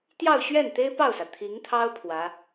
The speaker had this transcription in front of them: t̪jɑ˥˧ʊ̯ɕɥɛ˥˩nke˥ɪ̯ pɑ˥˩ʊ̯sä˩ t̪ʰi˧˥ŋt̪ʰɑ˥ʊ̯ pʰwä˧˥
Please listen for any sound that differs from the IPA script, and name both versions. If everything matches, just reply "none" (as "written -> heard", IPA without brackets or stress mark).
k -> t̪